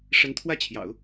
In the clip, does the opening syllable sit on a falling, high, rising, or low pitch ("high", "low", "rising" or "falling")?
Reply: rising